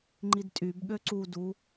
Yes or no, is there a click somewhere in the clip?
yes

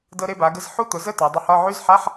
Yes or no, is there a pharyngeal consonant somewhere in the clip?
yes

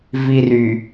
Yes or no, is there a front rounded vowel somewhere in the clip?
yes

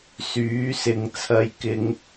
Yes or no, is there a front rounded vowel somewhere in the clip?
yes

